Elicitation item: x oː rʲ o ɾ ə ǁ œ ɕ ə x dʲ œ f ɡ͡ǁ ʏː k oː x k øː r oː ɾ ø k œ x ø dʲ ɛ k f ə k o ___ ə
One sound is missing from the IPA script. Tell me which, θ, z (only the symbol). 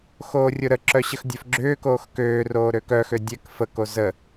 z